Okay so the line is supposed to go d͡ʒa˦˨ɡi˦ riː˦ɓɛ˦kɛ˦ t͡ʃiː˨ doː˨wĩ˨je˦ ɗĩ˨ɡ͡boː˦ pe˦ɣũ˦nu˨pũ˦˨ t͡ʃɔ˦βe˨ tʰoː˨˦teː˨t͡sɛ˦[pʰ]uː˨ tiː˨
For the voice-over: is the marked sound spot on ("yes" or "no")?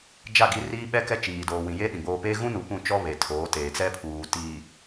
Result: yes